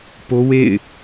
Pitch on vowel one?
high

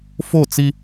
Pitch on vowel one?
falling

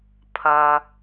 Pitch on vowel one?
low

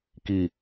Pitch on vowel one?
low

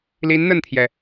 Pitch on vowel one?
rising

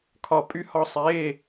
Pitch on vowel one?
falling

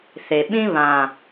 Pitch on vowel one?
low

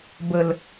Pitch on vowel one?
low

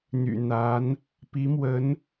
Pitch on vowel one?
low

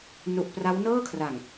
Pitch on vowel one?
low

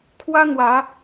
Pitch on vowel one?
high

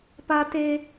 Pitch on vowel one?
high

